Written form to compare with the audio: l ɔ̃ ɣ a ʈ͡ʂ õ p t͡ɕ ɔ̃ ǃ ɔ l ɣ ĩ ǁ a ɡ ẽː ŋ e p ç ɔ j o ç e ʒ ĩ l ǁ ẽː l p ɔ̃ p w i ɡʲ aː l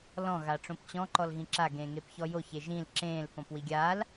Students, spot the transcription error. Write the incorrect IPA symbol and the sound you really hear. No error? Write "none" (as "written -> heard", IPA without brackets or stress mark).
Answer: none